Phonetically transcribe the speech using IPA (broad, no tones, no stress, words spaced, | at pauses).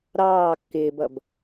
ɾɑː kːɪːbʌb